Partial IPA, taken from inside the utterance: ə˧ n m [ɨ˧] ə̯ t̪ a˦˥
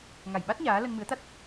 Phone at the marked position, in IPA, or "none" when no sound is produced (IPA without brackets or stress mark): ɨ˨˦